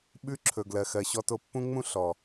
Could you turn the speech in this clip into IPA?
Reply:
ɓ ʉ˦ ǁʰ ɵ˨ ɡ l ɜ˨ x ɜ˨ ɕ ɔ˦ t o˦ pː ũ˦ ŋ͡m ũ˦ ɬ ɔ˨

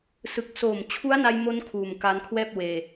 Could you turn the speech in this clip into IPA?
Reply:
s ɯ˨˩ k̚ s oː˨˩ m t͡ɕʰ u˦˥ a̯ n a˧ j m o˧ n kʰ uː˨˩ m k a˧ n kʰ w ɛː˥˩ p̚ w eː˧

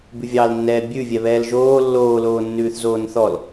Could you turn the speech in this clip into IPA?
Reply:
b ʉ vʲ ɑ l nː ɛː bʲ ʉ vʲ ɛ β ɛː l ʒ oː lː oː l oː nː ʉː θ z oː n θ ɔ l

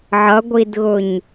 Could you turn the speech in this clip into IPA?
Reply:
ʕ ʌ ɡʷ i d ɣ ʊ ɲ

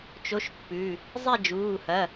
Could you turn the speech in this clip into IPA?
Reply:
t͡ʃ o˧˥˧ ʃ pː ʉ˩˧˩ | zˤ e˥˨ d͡ʒ uː˩˧˩ h ɐ˩˧˩

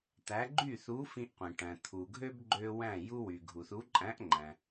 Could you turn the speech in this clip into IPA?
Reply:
t̪ æ˨˥ ɡ͡ǃ y˥˩ θ u˨˥ f ĩ˦ ʔ qʷ ĩ˩ ʈ æ̃˩ t̪ʰ u˩ ɡʱ ø˦ b ɡ͡ǃ ø˦ w æ̃˥˩ j u˦ w y˩ ɡʱ u˩ θ u˨˥ ǃʼ æ̃˨˥ ʔ ŋ͡ǃ æ̃˩

